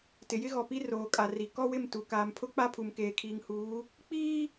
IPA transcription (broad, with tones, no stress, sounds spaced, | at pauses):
t ɪ˨ j ɪ˦ ɣ ɔ˨ p i˦ r oː˨ kʼ a˨ r i˨ k ɔ˦ w ɪ˦˨ m t u˨ k aː˨ m pʰ ʊ˦ k͡p a˦ pʰ u˨ m k eː˨ kʰ iː˨ ŋ h uː˨˦ | k͡p iː˦